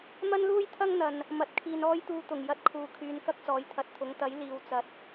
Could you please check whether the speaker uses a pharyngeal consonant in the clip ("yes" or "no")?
no